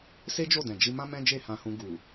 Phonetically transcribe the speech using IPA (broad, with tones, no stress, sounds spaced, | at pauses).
s e˦ d͡ʒ o˦˨ d ɛ̃˨ d͡ʒ i˧ m ã˦ m ɛ̃˦ d͡ʒ e˦˨ h ã˧ h ũ˧ ɡ u˨